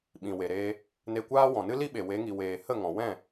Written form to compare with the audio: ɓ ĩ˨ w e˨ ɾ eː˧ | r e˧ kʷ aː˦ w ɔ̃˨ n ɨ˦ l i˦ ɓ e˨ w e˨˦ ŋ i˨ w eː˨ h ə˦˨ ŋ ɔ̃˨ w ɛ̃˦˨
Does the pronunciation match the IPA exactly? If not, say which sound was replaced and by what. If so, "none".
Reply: r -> n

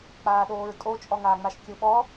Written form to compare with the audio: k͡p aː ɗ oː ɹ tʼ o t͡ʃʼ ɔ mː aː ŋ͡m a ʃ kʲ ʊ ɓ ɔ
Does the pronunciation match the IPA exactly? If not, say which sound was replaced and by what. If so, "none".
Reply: mː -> ŋ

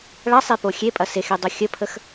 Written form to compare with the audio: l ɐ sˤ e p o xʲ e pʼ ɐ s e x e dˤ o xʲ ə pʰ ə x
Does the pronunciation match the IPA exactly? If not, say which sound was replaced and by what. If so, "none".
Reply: l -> ɭ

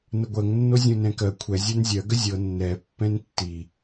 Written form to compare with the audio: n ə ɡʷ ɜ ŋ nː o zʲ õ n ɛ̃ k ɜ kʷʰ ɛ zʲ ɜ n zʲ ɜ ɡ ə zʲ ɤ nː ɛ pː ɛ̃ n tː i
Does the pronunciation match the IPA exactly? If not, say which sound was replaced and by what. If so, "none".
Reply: none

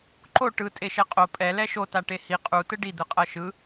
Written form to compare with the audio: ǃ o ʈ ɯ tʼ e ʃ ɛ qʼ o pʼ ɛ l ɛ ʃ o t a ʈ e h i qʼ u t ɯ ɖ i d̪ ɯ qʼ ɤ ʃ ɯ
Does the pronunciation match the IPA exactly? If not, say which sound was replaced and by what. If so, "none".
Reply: none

